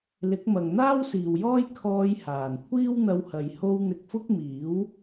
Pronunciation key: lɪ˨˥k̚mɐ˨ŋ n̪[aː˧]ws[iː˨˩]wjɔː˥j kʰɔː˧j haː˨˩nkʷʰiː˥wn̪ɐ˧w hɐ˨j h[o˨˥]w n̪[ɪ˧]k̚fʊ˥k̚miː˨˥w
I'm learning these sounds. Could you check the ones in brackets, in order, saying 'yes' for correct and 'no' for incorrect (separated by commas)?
no, no, no, yes